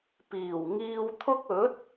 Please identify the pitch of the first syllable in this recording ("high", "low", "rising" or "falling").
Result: low